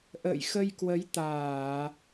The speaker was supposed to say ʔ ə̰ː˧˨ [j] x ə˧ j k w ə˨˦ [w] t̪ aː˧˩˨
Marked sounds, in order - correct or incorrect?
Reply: correct, incorrect: j

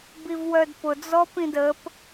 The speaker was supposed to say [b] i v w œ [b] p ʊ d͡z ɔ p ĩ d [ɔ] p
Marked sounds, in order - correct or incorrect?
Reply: correct, incorrect: d, incorrect: ə

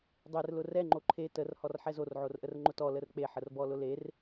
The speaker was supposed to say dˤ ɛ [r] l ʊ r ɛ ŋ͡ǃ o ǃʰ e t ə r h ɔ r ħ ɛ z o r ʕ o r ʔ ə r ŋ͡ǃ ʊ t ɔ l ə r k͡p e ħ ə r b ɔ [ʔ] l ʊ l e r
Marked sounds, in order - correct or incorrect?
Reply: correct, incorrect: none

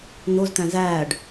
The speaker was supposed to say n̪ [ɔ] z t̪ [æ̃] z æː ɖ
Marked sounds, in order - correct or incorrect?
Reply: incorrect: o, correct

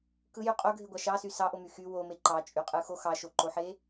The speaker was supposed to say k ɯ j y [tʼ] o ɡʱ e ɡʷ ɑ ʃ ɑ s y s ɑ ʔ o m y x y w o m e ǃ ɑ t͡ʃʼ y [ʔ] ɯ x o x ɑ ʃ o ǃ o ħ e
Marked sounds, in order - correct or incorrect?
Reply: incorrect: qʼ, incorrect: qʼ

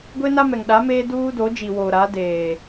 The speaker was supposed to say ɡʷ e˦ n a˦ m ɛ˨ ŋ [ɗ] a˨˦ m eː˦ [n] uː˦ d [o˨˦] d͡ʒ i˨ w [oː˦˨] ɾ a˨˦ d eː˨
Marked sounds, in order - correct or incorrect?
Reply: correct, incorrect: d, correct, incorrect: oː˨

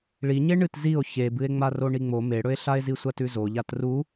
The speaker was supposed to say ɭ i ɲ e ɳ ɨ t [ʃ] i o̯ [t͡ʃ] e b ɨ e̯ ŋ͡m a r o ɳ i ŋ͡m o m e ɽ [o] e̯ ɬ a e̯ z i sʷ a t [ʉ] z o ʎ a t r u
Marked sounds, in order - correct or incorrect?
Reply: incorrect: z, incorrect: ç, incorrect: ɵ, correct

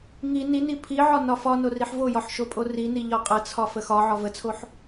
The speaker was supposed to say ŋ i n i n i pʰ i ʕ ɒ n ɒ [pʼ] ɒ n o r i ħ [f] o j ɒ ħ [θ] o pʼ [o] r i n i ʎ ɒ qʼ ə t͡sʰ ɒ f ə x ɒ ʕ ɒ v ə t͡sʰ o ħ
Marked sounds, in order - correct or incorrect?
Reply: incorrect: f, incorrect: v, incorrect: ʃ, correct

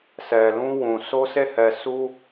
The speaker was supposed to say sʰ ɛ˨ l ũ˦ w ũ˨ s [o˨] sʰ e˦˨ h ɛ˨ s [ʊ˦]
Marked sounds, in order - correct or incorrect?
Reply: incorrect: o˦, incorrect: u˦

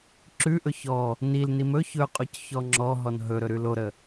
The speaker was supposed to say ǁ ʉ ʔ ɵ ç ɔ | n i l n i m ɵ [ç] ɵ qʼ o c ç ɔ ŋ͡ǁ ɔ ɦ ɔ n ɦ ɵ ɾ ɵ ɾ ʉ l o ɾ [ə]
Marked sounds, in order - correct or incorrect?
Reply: correct, correct

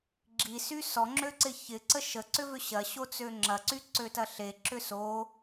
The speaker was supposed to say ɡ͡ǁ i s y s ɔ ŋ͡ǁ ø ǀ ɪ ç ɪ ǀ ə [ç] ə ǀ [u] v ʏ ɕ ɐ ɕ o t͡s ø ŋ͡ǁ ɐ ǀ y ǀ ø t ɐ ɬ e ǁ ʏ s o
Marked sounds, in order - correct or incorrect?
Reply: incorrect: ʃ, incorrect: ʏ

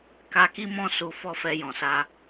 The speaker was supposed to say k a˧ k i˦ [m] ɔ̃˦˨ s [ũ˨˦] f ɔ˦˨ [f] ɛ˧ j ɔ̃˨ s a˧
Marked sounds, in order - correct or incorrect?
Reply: correct, incorrect: u˨˦, correct

